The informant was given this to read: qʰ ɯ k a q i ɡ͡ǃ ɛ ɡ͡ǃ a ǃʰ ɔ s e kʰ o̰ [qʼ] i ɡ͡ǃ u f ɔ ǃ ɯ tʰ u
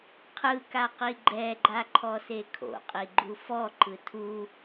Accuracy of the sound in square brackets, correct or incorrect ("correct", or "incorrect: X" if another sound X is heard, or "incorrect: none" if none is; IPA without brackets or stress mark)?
correct